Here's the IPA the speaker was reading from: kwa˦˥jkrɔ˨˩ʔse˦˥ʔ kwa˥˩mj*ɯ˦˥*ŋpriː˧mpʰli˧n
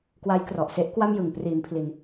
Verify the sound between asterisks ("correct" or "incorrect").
incorrect